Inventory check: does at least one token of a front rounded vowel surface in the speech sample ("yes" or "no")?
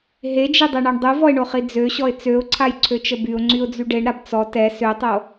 yes